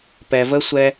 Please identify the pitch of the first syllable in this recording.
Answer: low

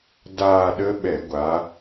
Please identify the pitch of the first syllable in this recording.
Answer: falling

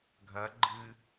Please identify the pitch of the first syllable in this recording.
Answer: rising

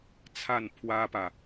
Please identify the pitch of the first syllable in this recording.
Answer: falling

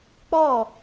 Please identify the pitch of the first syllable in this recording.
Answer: falling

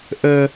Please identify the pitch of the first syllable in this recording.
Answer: high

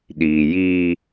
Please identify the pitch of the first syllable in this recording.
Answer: low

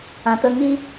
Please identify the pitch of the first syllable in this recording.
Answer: low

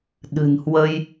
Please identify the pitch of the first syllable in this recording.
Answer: low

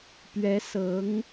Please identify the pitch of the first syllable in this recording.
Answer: rising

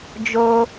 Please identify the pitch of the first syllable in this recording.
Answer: high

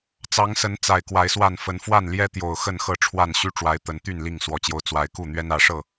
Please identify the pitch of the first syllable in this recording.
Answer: rising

